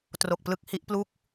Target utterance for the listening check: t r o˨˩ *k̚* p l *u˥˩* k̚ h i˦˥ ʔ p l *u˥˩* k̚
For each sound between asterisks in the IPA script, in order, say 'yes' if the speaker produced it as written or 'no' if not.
yes, no, yes

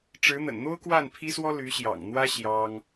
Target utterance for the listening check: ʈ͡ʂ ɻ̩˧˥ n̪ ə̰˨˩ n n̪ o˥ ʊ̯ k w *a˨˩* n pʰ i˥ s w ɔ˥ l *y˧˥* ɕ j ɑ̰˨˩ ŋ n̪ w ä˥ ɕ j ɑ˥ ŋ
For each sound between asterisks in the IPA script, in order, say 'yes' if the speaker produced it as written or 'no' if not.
no, yes

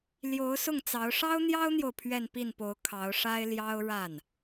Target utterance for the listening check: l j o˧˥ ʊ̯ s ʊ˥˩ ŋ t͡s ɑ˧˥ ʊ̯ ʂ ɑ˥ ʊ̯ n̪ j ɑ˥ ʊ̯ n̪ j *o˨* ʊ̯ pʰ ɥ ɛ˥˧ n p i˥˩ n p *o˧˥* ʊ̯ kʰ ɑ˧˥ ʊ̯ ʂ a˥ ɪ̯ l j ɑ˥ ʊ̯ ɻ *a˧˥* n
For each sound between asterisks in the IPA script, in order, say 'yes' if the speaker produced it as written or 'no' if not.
yes, yes, no

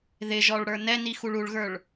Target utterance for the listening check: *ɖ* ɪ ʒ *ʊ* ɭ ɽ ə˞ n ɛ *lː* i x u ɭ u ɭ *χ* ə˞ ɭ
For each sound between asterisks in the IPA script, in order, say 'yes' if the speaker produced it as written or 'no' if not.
no, no, no, no

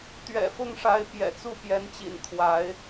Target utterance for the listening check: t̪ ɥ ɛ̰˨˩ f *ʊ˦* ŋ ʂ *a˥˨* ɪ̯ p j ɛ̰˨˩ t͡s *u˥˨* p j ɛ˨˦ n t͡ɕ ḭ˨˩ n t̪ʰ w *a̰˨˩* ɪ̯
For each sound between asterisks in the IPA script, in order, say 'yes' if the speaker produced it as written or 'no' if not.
no, no, yes, no

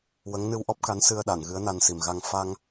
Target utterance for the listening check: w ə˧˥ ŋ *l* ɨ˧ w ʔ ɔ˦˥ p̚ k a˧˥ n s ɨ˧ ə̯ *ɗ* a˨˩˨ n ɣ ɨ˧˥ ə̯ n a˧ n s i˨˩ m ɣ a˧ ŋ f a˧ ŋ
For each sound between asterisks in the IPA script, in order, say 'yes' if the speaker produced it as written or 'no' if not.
no, yes

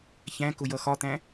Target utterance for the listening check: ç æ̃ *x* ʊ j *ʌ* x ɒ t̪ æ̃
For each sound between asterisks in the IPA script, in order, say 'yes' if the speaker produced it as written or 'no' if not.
no, yes

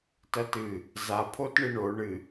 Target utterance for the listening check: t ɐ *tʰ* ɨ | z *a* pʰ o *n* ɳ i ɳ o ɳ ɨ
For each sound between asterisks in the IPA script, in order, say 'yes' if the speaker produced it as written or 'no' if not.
no, yes, no

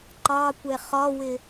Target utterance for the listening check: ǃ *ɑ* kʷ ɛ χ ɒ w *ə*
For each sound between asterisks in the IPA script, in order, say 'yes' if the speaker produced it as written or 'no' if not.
yes, no

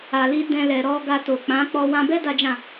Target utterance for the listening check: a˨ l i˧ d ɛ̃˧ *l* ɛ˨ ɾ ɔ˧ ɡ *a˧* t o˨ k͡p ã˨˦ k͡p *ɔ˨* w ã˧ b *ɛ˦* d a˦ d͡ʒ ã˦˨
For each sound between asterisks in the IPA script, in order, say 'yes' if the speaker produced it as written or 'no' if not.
yes, yes, no, yes

